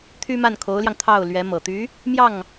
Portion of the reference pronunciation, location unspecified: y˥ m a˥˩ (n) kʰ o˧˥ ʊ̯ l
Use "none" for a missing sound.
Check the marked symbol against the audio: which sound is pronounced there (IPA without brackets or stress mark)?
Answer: n